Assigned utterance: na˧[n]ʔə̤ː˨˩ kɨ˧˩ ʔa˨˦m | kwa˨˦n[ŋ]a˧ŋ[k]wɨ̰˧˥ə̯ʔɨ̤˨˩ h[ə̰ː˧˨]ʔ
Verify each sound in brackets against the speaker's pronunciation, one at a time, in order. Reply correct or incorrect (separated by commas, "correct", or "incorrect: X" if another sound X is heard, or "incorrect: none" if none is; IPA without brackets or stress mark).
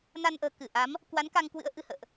correct, incorrect: k, correct, correct